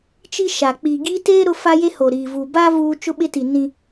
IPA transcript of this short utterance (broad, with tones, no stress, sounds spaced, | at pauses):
t͡ʃ i˦ ʃ a˨ k͡p i˨ ɡ i˦ t eː˦ ɾ ʊ˦ f a˦ j e˦ h o˨ ɾ iː˨ v u˨ b a˦ v uː˦ t͡ʃ ʊ˦ ɓ ɪ˦ t i˨ n ĩ˦